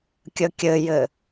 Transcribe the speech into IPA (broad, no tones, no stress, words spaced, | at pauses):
kʲəkʲɘjɘ